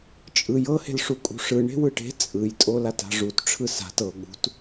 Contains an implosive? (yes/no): yes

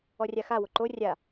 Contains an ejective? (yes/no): no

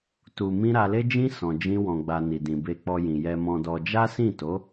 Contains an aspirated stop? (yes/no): no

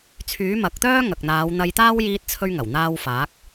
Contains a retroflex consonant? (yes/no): no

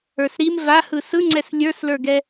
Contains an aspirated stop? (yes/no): no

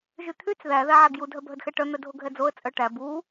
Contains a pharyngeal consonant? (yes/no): yes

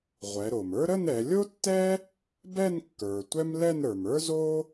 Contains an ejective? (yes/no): no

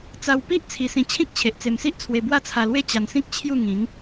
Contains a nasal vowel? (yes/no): yes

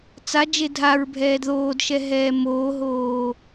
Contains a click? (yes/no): no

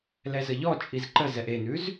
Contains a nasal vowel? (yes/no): no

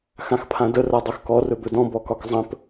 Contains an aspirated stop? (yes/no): yes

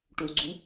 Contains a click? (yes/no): yes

